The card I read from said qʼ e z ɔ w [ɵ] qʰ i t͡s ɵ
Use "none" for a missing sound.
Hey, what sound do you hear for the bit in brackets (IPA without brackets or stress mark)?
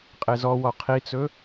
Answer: ɔ